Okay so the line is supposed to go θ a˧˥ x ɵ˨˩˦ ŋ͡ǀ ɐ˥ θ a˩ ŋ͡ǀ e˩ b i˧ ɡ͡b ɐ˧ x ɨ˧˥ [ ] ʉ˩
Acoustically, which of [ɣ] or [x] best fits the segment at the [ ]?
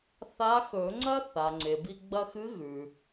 ɣ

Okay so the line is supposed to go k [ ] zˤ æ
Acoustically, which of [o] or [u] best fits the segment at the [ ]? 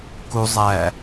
u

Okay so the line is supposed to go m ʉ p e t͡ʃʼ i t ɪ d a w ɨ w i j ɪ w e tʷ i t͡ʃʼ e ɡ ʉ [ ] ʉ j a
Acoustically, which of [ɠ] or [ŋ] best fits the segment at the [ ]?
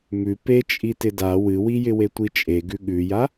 ɠ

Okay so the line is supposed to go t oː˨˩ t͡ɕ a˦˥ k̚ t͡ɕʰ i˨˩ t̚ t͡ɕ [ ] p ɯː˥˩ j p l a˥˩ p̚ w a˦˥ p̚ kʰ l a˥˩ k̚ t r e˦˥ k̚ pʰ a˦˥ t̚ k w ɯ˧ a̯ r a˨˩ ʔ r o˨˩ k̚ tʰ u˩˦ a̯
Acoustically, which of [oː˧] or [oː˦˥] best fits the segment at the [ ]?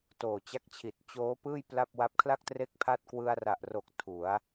oː˦˥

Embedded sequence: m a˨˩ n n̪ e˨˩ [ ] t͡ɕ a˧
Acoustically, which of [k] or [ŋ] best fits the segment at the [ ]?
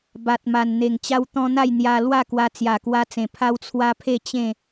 ŋ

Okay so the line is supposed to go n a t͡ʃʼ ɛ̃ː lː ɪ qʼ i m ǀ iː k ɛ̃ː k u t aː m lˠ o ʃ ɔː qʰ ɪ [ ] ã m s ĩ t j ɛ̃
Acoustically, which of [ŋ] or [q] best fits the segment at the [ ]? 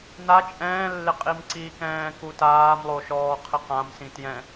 q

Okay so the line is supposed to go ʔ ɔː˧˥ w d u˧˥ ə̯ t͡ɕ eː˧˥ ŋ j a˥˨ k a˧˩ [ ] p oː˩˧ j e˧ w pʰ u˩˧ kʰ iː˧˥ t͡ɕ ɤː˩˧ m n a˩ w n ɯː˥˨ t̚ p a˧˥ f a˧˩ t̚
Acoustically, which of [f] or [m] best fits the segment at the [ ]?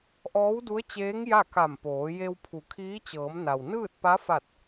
m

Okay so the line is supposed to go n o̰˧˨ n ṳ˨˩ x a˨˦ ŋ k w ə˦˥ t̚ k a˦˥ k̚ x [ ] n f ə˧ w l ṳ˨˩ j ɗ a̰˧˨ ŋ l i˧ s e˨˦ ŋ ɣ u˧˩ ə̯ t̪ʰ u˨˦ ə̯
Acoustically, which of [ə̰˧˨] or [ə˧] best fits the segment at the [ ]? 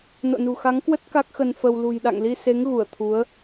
ə˧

